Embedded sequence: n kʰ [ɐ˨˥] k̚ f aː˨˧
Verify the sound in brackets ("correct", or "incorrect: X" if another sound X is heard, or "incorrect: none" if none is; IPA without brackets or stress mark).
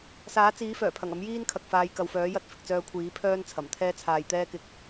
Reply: incorrect: ɐ˨